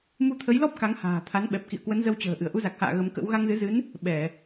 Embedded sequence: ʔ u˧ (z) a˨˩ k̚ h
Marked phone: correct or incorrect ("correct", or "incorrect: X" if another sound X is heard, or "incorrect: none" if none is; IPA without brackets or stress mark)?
correct